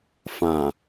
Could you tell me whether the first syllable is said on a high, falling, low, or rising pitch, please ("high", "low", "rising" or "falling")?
low